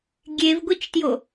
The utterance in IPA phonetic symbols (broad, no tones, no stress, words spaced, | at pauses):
ɡʲevɡʷit͡ʃtjo